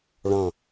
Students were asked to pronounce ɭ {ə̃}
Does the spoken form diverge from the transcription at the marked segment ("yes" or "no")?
yes